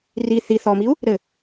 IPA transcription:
r i θ i θ ɔ m i u̯ | ɾ ɘ

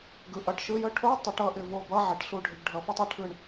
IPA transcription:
ɡ ɯ˩˧˩ ʔ ʌ˩˧˩ ʈ ʃ ɯ˧˥˧ j ə˥ ʈʰ o˧˥˧ tˤ ɪ˨˩˦ ʈ ʌ˦˨ ʔ ɪ˦˨ v o˦˨ b ʌ˧˥˧ ʕ ɪ˩˧˩ ʈ ɬ u˦˨ ɖʱ ɪ˨˩˦ ɡ ɖʱ ʌ˨˦ f ʌ˥ tˤ ə˨˩˦ ʈʰ ɯ˦˨ ɳ

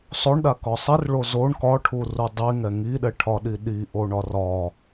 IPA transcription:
sˤ o ɳ ɗ a k ɒ sˤ i r ɭ o z o ɳ k ɒ ʈʰ u r u dˤ i ŋ ɛ ŋ i ɗ ɛ ʈʰ ɒ ɗ i ɗ i ʔ o ɳ ɒ r ɒ

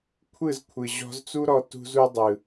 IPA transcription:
kʷʰ ɯ˦˨ z kʷʰ ɯ˨ ʑ ɔ̤˧ z t͡s u˦ ɾ ɔ˧ t ṳ˧ z u˧ dˤ ɯ˨

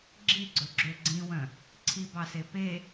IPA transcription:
ɡ͡ǁ i ɡ͡ǀ ɵ ɡ͡ǁ ø ɡ͡ǀ ĩ w œ̃ | ǀʰ i b ɑ s e p e

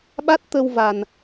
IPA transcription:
ɓ a˦˥ t̚ t̪ ə˧ w v a˨˩ n

